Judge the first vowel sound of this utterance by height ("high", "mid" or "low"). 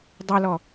mid